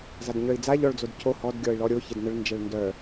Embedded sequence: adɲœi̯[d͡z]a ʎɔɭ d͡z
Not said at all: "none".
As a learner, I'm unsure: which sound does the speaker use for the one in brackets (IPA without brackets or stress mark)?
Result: d͡z